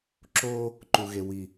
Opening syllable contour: high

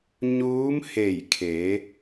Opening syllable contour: rising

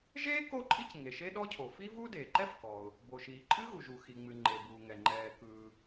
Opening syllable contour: high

